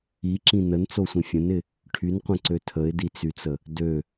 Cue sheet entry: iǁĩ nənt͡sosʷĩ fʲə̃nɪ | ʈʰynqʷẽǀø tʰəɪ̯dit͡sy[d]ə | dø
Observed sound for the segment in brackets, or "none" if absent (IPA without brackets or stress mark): t͡s